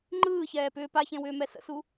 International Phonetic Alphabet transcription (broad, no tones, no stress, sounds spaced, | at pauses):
ŋ͡ǃ ɯː ç ɛː p ʏː p a ç ẽ w ʏː m ɛ s ə̰ s u